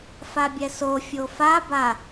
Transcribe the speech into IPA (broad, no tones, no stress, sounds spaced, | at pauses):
f a bʲ ɛ s o fʲ o f a b a